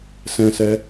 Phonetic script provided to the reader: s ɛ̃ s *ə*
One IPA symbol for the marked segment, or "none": ɛ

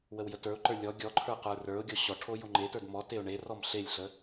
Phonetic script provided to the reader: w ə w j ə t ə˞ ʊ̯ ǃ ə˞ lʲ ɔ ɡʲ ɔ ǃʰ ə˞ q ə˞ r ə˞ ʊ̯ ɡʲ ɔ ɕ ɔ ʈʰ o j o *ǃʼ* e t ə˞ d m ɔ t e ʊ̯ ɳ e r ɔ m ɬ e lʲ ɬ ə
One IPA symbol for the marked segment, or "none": ŋ͡ǃ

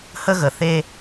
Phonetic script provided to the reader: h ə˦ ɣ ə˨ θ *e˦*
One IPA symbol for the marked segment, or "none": e˦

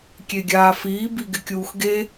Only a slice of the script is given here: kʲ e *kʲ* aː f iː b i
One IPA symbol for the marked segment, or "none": ɡʲ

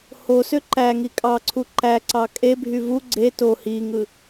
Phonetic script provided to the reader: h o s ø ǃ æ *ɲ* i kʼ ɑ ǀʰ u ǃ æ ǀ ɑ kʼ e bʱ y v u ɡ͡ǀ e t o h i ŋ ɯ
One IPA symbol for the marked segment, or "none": ŋ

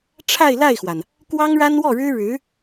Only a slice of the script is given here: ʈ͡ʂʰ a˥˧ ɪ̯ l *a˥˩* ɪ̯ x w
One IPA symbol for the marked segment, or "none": a˥˩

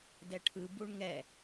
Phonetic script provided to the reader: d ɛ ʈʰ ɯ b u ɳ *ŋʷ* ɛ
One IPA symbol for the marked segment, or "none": ŋ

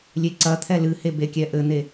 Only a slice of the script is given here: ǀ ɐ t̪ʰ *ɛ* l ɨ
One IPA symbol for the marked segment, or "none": ɛ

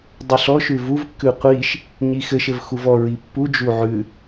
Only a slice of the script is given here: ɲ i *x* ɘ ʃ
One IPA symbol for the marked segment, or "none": x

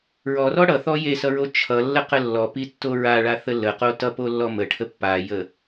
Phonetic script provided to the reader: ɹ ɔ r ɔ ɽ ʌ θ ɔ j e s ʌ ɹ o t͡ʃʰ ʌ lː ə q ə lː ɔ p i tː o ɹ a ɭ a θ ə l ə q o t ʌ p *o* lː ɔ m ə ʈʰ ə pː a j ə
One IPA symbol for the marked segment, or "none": o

